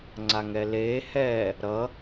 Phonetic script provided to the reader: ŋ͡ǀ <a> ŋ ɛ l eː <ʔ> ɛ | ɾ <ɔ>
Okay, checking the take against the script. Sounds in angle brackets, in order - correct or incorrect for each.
correct, incorrect: h, incorrect: ʌ

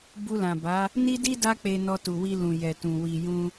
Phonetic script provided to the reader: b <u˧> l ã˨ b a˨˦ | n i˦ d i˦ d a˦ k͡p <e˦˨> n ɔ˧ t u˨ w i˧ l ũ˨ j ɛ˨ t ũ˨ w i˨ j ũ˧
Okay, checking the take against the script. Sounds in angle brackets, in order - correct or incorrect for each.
correct, incorrect: e˧

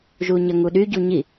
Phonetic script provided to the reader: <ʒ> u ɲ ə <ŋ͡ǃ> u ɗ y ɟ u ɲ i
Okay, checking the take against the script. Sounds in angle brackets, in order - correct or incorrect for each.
correct, incorrect: ŋ

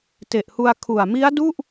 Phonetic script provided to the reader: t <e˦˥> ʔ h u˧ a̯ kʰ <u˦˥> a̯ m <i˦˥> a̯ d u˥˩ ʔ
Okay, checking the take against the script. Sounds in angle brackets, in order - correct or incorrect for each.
incorrect: e˨˩, incorrect: u˨˩, correct

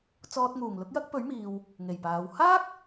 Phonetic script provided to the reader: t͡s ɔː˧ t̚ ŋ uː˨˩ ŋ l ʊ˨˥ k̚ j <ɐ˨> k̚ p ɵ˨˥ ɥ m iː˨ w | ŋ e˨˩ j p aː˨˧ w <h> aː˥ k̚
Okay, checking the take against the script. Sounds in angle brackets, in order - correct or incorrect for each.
incorrect: ɐ˥, correct

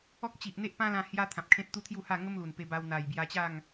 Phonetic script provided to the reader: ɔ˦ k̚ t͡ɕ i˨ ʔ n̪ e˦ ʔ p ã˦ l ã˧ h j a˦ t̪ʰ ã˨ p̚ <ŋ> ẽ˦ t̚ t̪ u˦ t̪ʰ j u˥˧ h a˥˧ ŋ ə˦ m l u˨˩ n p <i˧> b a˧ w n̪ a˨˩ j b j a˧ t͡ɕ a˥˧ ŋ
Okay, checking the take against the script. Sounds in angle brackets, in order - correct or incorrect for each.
incorrect: kʰ, incorrect: e˧

